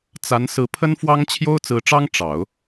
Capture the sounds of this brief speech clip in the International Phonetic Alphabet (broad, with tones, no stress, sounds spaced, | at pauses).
t͡s a˧˥ n s ɹ̩˧˥ pʰ ə˥ n f w ɑ˥ ŋ t͡ɕʰ j o˥ ʊ̯ t͡s ɹ̩˧˥ ʈ͡ʂ ɑ˥ ŋ ʈ͡ʂ ɑ˨˩˦ ʊ̯